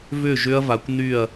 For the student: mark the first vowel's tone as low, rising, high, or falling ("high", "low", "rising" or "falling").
falling